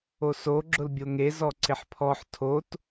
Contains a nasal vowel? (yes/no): no